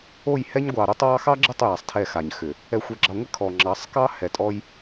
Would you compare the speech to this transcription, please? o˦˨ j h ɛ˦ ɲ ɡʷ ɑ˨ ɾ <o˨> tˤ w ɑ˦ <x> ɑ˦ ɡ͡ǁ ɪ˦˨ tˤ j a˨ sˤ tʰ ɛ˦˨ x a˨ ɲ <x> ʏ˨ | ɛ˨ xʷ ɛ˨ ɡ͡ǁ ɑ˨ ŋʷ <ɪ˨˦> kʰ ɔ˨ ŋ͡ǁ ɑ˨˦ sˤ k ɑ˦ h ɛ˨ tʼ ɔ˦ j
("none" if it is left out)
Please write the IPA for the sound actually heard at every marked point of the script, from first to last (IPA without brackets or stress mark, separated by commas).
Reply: o˦, x, x, ɪ˦